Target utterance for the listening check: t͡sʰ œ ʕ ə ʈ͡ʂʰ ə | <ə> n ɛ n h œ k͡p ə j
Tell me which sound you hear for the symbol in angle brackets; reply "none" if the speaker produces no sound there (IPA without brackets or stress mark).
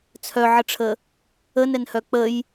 ə